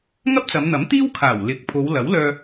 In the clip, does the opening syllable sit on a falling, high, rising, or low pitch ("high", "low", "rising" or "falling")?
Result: high